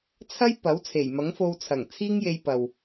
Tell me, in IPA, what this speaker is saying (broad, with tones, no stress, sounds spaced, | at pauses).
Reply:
t͡sʰ ɐ˥ j p ɐ˨˥ w t͡sʰ e˨˩ j m ɐ˨˥ ŋ f o˧ w t͡sʰ ɐ˨˩ ŋ t͡sʰ iː˥ ŋ j e˧ j p ɐ˨ w